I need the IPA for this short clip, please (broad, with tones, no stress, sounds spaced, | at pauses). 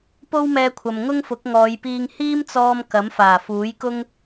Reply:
p o˥ w m ɛː˧ kʷʰ ɐ˨ m ŋ ʊ˥ ŋ f ʊ˨˥ k̚ ŋ ɔː˨˧ j p iː˧ ŋ h iː˥ m t͡s ɔː˧ m k ɐ˨˥ m f aː˨˩ f uː˨˥ j k ʊ˥ ŋ